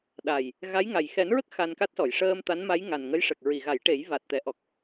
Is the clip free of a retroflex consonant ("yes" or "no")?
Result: no